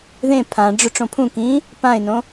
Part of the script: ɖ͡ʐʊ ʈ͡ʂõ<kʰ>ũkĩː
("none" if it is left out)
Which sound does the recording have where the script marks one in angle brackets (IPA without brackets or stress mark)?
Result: pʰ